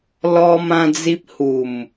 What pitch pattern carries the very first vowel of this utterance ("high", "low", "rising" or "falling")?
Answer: high